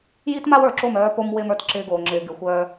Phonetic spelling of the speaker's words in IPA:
j i˦ t m a˦ w ə˞˨ ǁ o˦˨ m œː˦ p o˦ m w ɪː˦ m ə˞˨ t ǁ ɪː˦ ɡ oː˨ ŋ͡ǁ ɪː˨ ɡ ɪ˨˦ xʷ œː˦

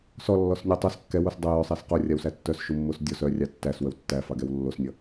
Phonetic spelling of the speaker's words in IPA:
s ɔ lː ɔ s nʲ o tˤ œ s kː ɛ w o s dˤ ə j œ sˤ æ s q o rʲ a w s æ tː œ s ʃ u mː o s dʲ ɔ s œ rʲ ɑ tː æ s w ə w tː æ f ɑ ɡ ɛ w lː o s nʲ ʌ

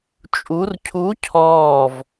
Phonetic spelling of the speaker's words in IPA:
t͡ʃʼ u r cʰ u cʰ ɔː v

